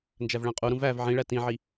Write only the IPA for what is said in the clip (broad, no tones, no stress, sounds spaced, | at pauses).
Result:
n d͡ʒ æ v ɭ æ̃ qʼ u ɾ ũ v æ v ʕ ĩ ɭ æ t ĩ ʕ i